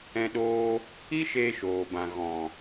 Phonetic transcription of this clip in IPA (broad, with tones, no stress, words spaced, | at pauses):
ɛ̃˧ɗoː˧ | i˦ʃeː˧ʃoː˨bã˨ ɣɔ̃˨